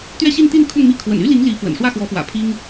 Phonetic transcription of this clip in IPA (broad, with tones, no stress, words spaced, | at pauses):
t̪ɥɛ˥˧ɕi˥˧nt̪i˥˧n kʰʊ˥˧ŋmi˥˩ kʰwə̰˨˩ny˥li˧˥ŋ li˧˥ fwə̰˨˩nʂwä˥˩xwɔ˧˥fwä̰˨˩ pʰi˥ŋ